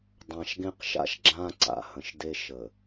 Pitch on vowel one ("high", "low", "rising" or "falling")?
low